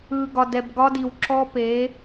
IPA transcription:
ɯː˨ ɡ ɒ˨ d ɛ˨ b ɡ ɒ˦ d i˨ w ǁ ɔ˦ p e˨˦

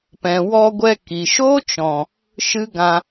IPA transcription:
p ɛ̃˨ w ɔ˧ ɡʷ ɛ˧ k i˨ ʃ o˦ t͡ʃ ɔ̃˨ | ʃ ɨ˦ ɡ ã˧

